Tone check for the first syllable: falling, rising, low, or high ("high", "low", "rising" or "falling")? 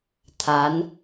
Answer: rising